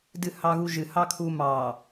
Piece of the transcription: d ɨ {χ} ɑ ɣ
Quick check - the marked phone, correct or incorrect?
incorrect